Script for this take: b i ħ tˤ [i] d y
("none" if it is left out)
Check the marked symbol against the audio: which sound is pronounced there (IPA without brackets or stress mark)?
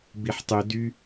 y